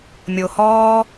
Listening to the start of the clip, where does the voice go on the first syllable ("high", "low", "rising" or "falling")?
low